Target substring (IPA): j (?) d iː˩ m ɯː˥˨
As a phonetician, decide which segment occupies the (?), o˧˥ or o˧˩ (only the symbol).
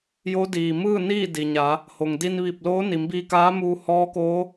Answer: o˧˥